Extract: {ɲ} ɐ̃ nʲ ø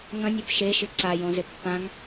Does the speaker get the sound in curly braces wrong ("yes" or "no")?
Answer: yes